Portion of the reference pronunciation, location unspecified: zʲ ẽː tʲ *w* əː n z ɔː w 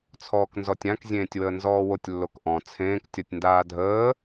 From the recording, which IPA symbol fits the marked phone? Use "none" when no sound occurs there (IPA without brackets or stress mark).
w